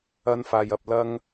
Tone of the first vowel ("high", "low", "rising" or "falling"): high